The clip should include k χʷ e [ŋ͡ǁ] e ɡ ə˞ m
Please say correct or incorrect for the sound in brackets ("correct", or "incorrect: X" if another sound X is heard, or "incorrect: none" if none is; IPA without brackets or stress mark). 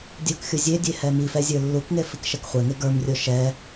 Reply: incorrect: ŋ